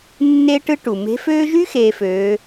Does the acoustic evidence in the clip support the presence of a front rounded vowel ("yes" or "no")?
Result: yes